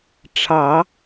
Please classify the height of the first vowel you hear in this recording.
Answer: low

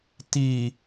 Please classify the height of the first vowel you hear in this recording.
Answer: high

